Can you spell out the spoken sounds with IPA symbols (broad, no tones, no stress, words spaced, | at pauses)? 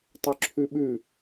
tˤɵǁʰʉɓʉ